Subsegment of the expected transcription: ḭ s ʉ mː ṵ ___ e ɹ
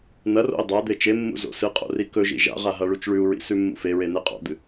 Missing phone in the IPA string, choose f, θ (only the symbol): f